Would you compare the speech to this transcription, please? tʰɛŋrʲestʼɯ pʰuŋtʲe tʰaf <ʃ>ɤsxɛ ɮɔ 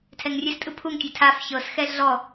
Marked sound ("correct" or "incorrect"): incorrect